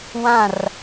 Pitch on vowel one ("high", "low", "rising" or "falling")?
falling